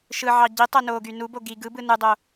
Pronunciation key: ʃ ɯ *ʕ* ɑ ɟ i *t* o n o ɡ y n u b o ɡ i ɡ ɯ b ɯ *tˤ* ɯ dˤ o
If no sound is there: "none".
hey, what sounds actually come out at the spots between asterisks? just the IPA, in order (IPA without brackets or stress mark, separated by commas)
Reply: ʕ, tˤ, n